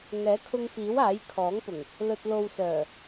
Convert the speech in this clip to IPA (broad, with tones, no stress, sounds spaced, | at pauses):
ŋ ɛː˨˥ kʰ ʊ˧ ŋ f iː˨˥ w aː˨˥ j kʰ ɔː˨˥ ŋ p ʊ˨˩ ŋ | l ɵ˨ t̚ l o˨ w s œː˨˩